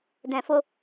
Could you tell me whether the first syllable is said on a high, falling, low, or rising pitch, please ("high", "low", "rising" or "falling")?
low